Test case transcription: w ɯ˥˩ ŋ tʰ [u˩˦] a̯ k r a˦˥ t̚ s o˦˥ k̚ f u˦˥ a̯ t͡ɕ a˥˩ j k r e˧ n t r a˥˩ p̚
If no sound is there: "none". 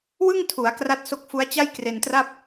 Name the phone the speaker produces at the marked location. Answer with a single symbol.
u˩˦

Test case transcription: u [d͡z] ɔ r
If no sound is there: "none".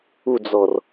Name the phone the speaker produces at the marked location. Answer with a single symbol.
d͡z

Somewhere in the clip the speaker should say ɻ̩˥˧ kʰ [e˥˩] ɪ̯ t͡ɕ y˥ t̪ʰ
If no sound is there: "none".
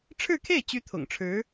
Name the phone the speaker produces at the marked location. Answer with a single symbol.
e˥˩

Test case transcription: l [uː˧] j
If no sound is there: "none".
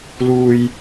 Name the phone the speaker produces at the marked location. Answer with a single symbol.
uː˧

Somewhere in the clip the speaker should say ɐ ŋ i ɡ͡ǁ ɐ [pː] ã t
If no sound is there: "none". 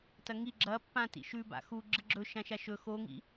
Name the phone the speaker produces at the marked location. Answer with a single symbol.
pː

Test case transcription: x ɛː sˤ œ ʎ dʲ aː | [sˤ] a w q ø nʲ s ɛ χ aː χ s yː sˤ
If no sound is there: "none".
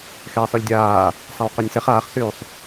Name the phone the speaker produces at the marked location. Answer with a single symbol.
sˤ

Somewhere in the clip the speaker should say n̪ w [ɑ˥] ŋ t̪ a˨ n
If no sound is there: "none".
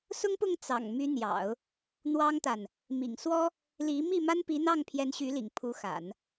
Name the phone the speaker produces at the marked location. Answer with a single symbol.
ɑ˥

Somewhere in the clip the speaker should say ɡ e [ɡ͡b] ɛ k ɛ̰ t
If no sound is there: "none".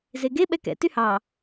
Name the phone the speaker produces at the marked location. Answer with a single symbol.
ɓ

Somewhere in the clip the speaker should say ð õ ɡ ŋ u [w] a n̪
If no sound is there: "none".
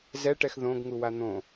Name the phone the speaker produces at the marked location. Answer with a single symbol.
w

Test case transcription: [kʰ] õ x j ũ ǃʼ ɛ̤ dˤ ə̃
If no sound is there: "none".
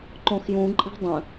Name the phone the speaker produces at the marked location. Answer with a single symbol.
ǃ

